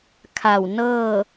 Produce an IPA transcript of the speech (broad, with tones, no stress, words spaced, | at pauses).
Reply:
kʰa˧˩w nɤː˥˨